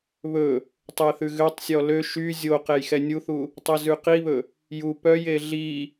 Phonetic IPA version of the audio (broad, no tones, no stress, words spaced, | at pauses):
βɵ | tˤeθʉɣøtˤsʲɔ lø ʃy zʲo qejxɛnʲuθu | tˤɛzʉqiβɵ | ju pœje ɮi